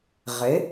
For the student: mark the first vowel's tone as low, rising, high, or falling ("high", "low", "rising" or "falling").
rising